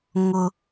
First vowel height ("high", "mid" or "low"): high